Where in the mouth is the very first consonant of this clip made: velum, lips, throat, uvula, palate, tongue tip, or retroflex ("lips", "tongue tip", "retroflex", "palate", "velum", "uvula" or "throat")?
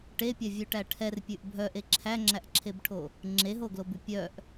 retroflex